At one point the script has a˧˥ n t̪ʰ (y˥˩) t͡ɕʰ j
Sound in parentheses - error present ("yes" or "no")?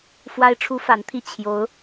yes